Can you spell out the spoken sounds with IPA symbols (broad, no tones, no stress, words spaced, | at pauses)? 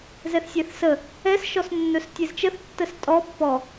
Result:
zɛθsʲɛθsə | ɛs ʃɔsnːɵstʲezt͡ʃəθ tːəstʼɔ pːɔ